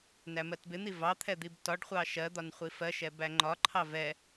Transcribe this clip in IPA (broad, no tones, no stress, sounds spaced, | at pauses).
n æ m ɜ t b ɪ n̪ i v ɑ t̪ʰ ɛ d̪ i b t ɒ ɖ χʷ ɑ ʃ ɜ d̪ ɒ n χʷ i f ɜ ʃ ɛ b æ ŋ͡ǃ ɒ ǃʰ ɑ v ɛ